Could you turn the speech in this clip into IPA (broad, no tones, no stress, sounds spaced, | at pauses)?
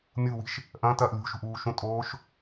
mʲ u w i̤ ʃ | ʔ ɐ̃ː t ɐː ʔ lʲ ṳ ʃ ṳ ʔ uː ʃ ũ tʼ oː ʃ